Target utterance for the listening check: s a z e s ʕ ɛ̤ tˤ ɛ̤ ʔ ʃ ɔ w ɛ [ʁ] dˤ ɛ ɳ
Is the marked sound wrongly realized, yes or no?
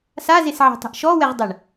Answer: no